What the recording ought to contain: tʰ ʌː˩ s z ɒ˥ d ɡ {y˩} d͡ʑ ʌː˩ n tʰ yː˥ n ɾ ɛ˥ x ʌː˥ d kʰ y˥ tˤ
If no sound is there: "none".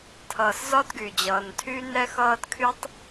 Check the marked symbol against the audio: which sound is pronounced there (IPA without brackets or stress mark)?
y˩